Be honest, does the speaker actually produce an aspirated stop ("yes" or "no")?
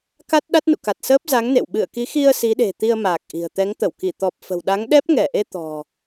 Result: no